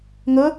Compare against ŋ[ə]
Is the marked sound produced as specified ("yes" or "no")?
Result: yes